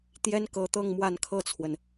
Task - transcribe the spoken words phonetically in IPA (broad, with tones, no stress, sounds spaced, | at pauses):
t̪ j ɛ˥ n k ɤ˧˥ t̪ ɤ˥˧ ŋ m w a˥˧ n kʰ ɤ˥˩ t͡sʰ w ə˩ n